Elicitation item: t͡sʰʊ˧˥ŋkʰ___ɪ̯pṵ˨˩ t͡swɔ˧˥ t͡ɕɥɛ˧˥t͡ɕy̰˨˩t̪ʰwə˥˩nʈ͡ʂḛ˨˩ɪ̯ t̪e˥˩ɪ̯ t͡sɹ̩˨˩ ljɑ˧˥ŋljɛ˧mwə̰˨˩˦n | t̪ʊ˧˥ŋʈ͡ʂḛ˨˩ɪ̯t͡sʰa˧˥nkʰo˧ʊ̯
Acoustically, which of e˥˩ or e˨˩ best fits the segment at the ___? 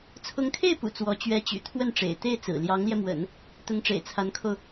e˥˩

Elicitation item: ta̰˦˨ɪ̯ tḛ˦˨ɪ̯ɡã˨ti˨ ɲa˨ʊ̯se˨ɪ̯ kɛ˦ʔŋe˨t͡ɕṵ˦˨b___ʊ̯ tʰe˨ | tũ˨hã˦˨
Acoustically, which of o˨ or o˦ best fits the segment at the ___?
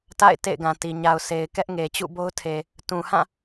o˦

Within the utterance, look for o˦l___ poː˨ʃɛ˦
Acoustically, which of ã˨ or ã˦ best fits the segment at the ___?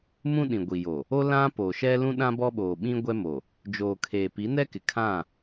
ã˦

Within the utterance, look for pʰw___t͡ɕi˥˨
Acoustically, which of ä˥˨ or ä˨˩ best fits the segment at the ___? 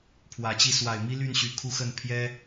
ä˨˩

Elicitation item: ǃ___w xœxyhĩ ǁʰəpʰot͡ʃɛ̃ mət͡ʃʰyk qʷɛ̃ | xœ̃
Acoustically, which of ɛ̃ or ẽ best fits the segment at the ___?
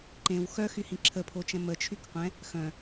ẽ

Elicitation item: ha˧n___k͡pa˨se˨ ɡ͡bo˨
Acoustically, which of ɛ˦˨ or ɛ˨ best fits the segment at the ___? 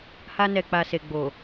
ɛ˨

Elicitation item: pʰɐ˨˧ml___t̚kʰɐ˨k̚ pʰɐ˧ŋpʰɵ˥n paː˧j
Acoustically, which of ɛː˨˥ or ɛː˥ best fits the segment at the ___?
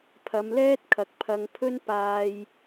ɛː˥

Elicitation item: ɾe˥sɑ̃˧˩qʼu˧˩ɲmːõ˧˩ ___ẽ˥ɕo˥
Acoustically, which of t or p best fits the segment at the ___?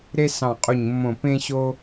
p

